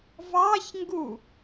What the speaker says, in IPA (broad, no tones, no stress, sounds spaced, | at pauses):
v ɑ ç ŋ ɡ u